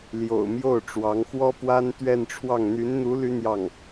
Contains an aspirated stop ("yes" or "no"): yes